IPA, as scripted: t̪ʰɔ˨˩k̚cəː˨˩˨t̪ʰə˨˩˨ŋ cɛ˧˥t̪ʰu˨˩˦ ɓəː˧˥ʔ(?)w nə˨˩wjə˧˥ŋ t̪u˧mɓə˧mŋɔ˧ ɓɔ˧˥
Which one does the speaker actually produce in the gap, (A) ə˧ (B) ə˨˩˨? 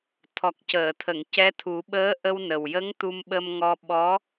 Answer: A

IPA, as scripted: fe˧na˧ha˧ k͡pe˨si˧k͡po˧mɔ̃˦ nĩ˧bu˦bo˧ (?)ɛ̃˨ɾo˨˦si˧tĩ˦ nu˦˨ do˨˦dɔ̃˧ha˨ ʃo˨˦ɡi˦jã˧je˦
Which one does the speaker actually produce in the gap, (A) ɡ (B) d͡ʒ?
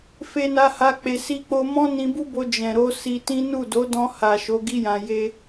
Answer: B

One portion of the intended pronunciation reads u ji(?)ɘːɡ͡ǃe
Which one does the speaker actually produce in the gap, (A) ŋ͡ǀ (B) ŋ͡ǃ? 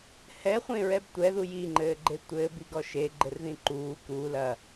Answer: B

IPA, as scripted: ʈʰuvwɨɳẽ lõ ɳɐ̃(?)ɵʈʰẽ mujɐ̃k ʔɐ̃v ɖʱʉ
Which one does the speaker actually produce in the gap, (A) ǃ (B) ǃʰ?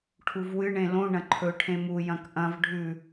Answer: B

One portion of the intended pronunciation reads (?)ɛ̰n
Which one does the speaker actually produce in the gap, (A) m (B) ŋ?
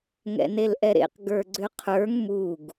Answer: B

